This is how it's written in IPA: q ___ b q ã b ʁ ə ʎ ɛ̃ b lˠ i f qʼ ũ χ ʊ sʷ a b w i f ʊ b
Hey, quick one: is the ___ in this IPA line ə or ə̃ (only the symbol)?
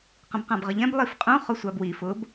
ə̃